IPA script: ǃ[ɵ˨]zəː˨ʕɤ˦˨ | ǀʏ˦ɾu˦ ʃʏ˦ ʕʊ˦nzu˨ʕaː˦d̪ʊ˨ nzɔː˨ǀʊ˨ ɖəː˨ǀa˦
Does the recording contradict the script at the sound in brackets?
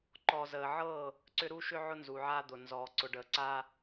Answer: yes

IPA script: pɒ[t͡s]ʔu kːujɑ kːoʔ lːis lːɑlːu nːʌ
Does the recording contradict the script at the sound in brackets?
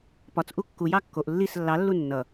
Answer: no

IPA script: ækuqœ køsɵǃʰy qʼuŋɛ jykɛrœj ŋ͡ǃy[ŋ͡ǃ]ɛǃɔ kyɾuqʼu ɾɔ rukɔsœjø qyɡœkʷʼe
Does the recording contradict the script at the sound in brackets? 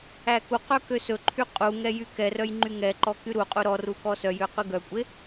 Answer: yes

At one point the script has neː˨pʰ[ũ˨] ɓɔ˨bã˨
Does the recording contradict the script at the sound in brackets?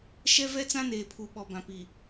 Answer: yes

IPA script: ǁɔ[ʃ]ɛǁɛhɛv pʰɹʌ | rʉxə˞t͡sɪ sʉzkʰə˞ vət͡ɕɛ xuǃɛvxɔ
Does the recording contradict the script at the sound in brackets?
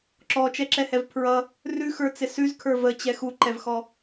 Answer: yes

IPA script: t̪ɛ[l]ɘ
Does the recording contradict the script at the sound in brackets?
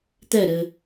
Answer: yes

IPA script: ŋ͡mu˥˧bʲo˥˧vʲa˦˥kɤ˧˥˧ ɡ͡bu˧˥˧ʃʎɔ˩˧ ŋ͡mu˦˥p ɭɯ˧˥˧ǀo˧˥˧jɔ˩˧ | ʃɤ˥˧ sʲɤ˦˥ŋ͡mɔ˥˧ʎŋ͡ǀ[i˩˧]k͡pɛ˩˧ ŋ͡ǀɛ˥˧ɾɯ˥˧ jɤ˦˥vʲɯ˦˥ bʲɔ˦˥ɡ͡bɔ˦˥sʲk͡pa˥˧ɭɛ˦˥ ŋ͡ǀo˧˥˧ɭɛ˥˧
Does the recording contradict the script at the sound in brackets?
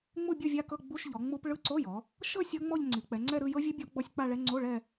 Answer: no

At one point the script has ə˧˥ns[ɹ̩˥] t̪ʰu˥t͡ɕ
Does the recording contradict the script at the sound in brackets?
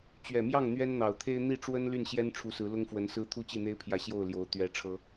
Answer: no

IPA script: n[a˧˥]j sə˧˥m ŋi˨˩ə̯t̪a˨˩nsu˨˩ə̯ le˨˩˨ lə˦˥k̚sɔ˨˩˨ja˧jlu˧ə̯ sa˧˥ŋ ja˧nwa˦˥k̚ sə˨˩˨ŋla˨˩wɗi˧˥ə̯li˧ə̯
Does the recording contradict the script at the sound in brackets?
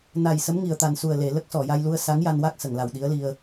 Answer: yes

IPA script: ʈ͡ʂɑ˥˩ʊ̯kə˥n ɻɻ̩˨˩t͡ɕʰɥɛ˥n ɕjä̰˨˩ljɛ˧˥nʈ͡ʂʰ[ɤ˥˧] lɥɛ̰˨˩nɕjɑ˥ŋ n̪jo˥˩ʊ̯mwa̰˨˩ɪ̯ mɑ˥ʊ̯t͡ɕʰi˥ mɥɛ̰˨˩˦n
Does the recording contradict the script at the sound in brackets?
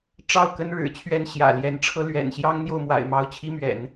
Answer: yes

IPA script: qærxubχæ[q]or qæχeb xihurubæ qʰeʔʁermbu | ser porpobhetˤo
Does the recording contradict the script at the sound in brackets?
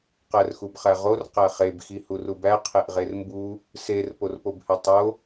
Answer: yes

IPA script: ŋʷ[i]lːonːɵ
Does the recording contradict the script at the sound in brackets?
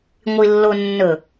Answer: no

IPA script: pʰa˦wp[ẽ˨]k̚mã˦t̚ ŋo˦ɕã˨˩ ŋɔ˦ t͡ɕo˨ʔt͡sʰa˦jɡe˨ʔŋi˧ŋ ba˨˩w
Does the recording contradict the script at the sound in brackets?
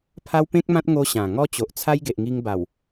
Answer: yes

